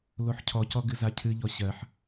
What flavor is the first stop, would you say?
aspirated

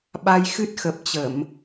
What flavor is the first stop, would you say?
implosive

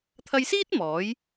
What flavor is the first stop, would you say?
aspirated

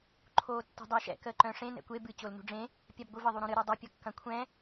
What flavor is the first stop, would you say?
click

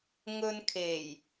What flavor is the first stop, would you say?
aspirated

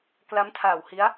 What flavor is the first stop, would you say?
plain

